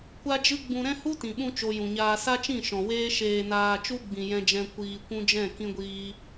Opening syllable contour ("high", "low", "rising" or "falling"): high